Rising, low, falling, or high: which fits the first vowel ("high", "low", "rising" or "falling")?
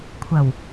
low